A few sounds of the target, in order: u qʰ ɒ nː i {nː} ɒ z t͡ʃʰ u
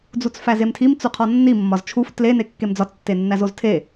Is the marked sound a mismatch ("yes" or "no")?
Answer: yes